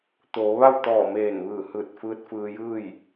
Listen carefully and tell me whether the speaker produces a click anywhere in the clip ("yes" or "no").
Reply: no